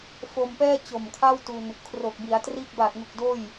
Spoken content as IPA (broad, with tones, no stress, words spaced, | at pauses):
fo˧mpɛː˥˩ t͡ɕo˨˩mkʰa˥˩wtu˧n | kʰro˨˩k̚bi˩˦a̯triː˥˩k̚ baː˨˩t̚ŋu˨˩k̚ doː˥˩j